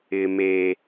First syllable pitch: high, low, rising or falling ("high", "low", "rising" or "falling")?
low